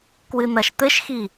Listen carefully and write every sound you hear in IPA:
k w ɨ n̪ ɐ ʃ t̪ ɘ ʃ x i

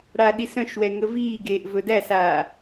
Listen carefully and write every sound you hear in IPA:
ɽ aː ɗ i s œ̃ ʃ w ɛ ŋ ə v iː ɡ eː ʔ v ɵ d æ s aː

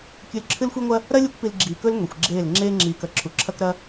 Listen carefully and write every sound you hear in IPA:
kʲ ʉ˧ l ǁʰ ɨ˦ l xʷ i˦ ŋʷ ɐ˦ | ɾ ɐ˦ lʲ u˦ kʷ p i˧ l ɡ͡ǁ iː˨ k ɵ˦ l ŋʷ i˨ xʷ ɡ͡ǁ eː˦˨ l ŋ͡ǁ eː˦ ŋ͡ǁ iː˧ k ɐ˧ ǁʰ u˨ ǁʰ ɐ˦ k ɾ ɐ˦

